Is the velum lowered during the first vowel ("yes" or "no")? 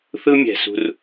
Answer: no